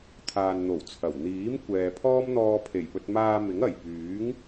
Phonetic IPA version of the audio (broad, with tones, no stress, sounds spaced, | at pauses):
t̪ʰ aː˨ n n̪ o˨˩ w t͡sʰ ɐ˨˩ w n̪ iː˨˥ m kʷ ɛː˨ pʰ ɔː˥ m n̪ ɔː˧ pʰ e˨˩ j p ɵ˧ t̚ m aː˧ m ɪ˨˥ ŋ ɐ˨˩ j p yː˨˥ ŋ